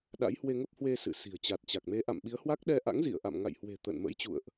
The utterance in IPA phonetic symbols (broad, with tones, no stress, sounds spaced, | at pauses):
ɗ a̰˧˥ j h w e˧ ŋ ə˦˥ p̚ h w e˧ s ɨ̰˧˨ s i̤˨˩ ə̯ t͡ɕ a˨˩ t̚ t͡ɕ a˨˩ k̚ m e˨˦ ʔ a̰˧˨ m ɓ i˨˦ ə̯ h w a˦˥ k̚ ɗ ɛ˧ ʔ a̰˧˥ ŋ z ḭ˧˨ ə̯ ʔ a̰˧˨ m ŋ a̰˧˨ j h w e̤˨˩ t̪ ə̰ː˧˨ n m ə̰˧˥ j t͡ɕ ṵ˧˨ ə̯ ʔ